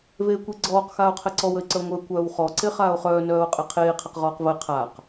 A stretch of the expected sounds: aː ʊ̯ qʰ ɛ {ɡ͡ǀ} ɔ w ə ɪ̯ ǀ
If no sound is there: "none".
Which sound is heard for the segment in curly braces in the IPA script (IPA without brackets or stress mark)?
ǀ